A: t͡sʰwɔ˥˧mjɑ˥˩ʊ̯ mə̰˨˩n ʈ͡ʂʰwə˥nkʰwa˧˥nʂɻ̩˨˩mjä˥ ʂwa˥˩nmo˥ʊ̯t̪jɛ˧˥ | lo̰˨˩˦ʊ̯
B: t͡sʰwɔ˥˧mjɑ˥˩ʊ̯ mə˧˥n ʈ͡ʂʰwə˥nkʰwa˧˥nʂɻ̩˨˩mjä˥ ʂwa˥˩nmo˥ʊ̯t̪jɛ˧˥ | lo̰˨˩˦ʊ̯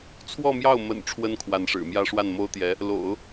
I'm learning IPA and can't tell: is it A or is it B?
A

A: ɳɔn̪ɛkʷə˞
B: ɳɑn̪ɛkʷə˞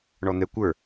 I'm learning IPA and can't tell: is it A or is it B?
A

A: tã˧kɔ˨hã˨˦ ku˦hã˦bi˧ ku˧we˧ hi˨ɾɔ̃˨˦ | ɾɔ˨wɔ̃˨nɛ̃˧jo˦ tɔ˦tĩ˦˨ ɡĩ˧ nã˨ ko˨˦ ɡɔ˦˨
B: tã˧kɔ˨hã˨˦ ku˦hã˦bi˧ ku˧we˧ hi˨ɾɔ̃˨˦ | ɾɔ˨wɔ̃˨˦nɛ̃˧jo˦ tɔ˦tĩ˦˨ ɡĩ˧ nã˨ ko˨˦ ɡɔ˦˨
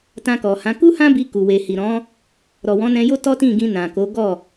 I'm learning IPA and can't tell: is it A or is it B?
B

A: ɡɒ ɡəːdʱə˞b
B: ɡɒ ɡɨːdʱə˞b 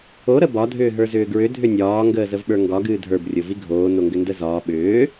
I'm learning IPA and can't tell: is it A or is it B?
B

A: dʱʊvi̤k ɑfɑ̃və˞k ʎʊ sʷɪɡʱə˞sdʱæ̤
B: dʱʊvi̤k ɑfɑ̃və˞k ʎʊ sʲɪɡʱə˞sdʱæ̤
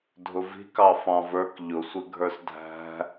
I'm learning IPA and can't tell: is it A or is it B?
A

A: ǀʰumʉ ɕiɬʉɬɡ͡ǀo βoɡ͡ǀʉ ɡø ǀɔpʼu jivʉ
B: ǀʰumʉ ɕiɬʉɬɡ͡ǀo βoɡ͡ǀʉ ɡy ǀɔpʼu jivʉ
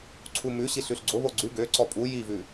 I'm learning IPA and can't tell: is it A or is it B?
A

